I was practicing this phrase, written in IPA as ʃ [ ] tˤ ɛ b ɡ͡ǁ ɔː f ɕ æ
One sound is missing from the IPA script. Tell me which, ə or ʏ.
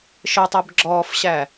ə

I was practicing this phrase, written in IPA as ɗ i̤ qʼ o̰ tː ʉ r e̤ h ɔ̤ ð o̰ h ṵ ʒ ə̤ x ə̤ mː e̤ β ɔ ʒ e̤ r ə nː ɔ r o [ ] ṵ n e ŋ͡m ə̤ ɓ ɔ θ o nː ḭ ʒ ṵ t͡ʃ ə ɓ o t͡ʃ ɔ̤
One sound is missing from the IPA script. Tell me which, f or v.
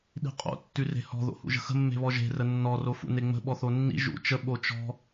f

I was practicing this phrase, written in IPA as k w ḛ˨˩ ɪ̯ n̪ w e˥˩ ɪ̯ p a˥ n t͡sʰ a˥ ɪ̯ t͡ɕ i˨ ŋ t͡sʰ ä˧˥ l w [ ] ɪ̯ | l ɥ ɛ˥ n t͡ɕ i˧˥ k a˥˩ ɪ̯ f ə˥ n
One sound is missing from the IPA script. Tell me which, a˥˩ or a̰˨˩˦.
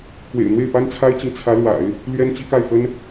a̰˨˩˦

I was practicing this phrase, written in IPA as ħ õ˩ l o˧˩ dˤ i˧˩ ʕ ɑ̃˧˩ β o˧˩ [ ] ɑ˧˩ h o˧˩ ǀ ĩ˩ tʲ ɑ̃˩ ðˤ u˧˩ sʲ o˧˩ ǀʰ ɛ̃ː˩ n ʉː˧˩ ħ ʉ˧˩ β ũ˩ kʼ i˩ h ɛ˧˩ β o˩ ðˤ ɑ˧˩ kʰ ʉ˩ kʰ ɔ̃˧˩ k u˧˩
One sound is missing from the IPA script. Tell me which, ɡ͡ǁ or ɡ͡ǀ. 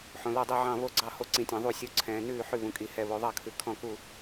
ɡ͡ǀ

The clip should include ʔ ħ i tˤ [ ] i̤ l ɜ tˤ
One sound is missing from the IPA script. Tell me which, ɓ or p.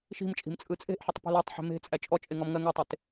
p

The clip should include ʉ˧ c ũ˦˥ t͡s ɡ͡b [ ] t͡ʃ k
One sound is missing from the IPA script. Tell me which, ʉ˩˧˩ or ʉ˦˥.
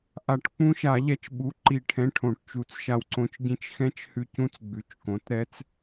ʉ˩˧˩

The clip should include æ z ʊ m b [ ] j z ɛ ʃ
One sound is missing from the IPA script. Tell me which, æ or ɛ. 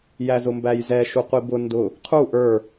æ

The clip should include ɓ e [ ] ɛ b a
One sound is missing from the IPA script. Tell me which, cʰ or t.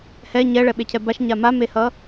cʰ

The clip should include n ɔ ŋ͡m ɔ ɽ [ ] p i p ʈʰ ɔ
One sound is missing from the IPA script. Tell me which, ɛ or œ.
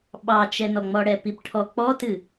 ɛ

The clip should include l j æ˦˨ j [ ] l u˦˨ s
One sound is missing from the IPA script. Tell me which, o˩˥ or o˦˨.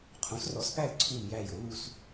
o˩˥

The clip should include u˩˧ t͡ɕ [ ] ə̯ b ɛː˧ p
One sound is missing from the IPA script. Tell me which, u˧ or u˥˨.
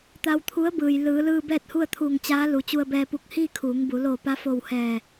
u˧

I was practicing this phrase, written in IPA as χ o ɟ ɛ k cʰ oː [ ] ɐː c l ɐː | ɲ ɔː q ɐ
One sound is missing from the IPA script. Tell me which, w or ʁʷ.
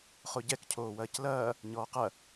w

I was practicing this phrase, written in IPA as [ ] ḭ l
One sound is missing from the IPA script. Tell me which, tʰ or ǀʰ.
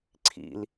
ǀʰ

